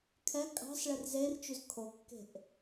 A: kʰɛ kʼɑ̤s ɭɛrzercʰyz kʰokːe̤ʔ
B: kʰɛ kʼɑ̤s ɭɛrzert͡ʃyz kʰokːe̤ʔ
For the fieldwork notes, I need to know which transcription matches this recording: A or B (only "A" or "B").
B